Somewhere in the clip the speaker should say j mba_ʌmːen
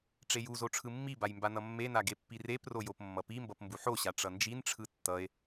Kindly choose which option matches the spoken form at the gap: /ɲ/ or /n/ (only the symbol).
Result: n